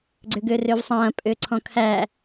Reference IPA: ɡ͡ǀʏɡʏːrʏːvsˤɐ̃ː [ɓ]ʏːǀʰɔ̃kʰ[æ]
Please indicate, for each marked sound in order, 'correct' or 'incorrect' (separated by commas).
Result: incorrect, correct